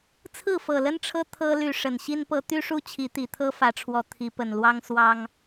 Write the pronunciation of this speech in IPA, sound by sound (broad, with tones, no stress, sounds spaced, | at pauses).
t͡sʰ ɹ̩˥˨ f ɤ˨˩ l ə˦ n ʈ͡ʂʰ ɤ˦ t̪ʰ ɤ˦ l y˨˦ ʂ ə˨˩ n ɕ i˦ n p ɤ˦ t̪ y˦ ʂ u˦ t͡ɕʰ i˨˦ t̪ i˨˩ t̪ʰ ɤ˦ f ä˨˦ ʈ͡ʂʰ w ɔ˨˦ t̪ʰ i˨˦ p ə˨˩ n l w ɑ˦ ŋ s w ɑ˦ ŋ